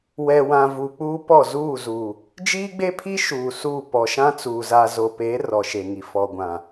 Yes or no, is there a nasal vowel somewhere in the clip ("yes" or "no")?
yes